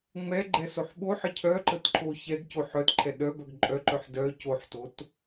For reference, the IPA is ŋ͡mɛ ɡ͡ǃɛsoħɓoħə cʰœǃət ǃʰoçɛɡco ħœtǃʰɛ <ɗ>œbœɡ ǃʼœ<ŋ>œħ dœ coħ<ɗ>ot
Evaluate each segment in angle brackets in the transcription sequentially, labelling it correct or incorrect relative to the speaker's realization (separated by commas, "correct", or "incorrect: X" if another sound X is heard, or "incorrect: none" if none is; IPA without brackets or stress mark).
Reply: correct, incorrect: ǃ, incorrect: t